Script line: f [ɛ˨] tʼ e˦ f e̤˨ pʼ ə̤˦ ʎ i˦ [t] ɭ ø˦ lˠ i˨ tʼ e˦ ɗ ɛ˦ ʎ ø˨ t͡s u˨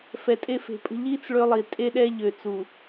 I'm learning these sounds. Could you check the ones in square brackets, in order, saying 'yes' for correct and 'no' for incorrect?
yes, no

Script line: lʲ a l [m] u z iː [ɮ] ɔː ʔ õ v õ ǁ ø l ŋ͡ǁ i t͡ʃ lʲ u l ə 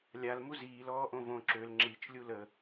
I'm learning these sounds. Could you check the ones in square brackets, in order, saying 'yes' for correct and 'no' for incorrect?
yes, no

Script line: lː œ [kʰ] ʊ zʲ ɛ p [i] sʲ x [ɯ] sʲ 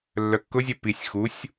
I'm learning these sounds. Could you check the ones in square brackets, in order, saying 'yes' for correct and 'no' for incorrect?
no, yes, no

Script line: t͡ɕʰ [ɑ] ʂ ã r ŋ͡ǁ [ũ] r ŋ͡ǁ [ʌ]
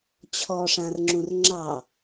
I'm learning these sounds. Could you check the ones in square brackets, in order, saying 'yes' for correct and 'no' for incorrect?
no, yes, no

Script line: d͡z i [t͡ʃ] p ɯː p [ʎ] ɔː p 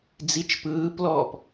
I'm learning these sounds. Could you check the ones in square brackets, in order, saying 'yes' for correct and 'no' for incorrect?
yes, no

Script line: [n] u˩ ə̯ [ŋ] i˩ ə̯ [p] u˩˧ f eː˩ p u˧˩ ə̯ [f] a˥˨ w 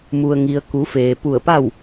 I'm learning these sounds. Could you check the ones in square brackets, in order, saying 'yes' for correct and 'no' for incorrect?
no, yes, no, no

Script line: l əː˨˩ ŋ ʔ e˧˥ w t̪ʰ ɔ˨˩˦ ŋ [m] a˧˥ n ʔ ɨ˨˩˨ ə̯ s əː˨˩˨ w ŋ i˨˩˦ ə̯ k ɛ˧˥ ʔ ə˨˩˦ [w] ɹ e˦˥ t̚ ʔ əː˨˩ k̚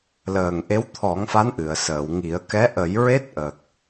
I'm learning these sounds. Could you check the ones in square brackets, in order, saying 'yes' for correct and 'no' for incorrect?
no, no

